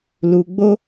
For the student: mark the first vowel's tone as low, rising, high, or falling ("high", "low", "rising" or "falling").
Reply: low